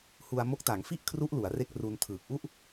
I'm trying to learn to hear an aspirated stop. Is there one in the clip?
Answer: yes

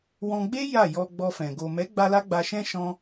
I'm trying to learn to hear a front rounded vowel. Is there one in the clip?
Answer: no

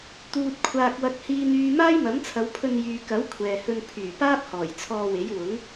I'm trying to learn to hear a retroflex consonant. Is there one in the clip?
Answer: no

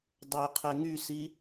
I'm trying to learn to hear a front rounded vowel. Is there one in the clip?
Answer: yes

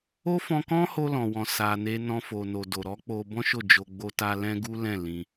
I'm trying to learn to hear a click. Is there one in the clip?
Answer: no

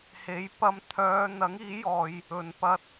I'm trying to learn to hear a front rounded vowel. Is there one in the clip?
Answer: yes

